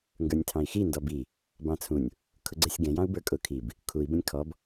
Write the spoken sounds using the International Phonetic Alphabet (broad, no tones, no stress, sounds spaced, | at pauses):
ŋ ɡ ə˞ nʲ tʰ ɑ̃ i̯ x i n d ɔ b i | b ɑ̃ t͡sʰ ũ nʲ | kʰ ʊ ɡ͡ǀ ɛ sʲ ɡ ɛ̃ j ɑ̃ u̯ b ə˞ kʼ ʊ kʰ i b | kʰ u i̯ b ə̃ nʲ kʰ ɔ b